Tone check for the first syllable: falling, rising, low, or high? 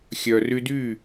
low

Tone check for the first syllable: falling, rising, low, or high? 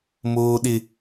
high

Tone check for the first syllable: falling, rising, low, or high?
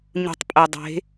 low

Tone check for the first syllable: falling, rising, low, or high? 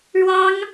high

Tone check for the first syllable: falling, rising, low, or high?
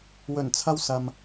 low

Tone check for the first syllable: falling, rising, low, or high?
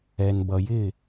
low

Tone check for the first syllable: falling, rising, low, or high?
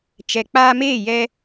low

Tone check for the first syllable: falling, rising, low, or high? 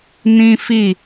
high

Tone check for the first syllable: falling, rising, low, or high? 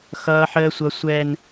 high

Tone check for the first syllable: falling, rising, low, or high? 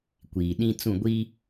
low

